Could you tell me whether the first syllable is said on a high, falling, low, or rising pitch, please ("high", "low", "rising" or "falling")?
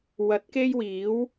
rising